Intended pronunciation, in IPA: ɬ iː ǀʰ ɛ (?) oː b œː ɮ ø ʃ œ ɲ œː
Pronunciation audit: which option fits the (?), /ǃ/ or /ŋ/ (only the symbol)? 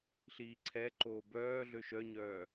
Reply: ǃ